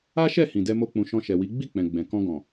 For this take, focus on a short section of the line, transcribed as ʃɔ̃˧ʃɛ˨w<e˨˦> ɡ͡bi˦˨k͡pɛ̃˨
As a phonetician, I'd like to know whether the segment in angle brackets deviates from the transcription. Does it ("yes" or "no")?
yes